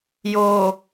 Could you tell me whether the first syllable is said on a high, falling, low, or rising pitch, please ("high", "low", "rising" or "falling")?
low